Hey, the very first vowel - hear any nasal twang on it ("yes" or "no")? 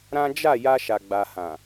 yes